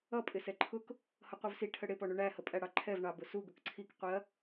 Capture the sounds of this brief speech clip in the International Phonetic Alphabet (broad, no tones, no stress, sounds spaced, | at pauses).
ʌ pʼ ɪ s ɛ ǃʰ ʊ k | h ʌ qʷ ə˞ v s i ʈʰ ə ɽ ɪ p ɔ ɳ u ɳ æ h ə pʼ æ ɽ ɑ ǃʰ ɛ v ɳ ɑ b ʊ s u ɡ ʊ k ǀʰ i k qʷ i ɐ̯